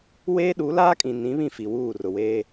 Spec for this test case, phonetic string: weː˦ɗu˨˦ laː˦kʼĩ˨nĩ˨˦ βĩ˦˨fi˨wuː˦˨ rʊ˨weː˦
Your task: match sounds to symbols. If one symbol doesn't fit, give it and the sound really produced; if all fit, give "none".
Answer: none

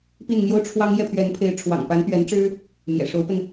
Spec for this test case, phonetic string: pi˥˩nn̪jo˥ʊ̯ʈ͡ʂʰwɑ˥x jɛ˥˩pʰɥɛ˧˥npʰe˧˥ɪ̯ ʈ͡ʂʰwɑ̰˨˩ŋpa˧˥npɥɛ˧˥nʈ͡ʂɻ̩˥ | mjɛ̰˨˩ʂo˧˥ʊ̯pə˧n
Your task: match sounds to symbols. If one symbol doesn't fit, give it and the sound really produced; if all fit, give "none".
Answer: x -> ŋ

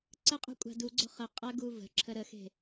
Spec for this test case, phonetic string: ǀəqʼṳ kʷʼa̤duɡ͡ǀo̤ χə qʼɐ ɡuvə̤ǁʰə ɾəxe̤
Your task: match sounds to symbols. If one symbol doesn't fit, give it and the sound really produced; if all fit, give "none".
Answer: none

